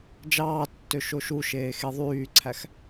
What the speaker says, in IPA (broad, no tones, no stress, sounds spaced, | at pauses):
d͡ʒ ɑː tː ø ʃ o ʃ u ʃ eː x e ðˤ yː ǀʰ æ x